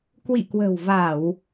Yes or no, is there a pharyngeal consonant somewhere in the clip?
no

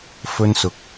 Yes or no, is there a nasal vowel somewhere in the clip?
no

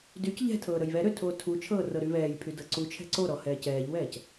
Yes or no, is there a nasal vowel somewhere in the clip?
no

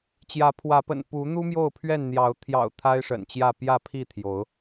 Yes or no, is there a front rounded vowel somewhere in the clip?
no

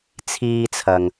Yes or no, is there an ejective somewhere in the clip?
no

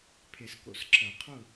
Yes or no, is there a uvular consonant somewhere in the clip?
yes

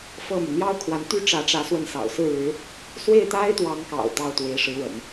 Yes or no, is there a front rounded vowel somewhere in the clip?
yes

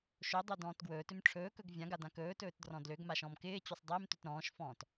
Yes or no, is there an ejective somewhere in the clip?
no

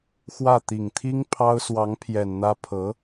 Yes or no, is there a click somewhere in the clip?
no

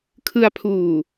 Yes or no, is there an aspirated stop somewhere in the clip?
yes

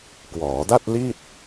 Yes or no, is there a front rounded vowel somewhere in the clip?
no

